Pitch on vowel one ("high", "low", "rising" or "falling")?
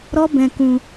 high